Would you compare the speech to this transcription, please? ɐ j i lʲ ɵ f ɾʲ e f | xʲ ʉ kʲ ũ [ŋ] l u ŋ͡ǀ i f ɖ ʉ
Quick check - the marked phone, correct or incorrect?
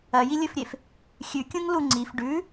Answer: correct